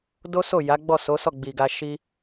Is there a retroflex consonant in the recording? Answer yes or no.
no